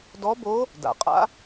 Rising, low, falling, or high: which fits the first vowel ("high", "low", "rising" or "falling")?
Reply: rising